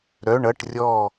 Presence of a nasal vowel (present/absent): absent